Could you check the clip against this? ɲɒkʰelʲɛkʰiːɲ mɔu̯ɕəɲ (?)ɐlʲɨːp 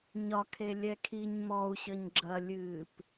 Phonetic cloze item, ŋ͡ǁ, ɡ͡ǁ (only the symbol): ɡ͡ǁ